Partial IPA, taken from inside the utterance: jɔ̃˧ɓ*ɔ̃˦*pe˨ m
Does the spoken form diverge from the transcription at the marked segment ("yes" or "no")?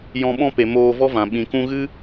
no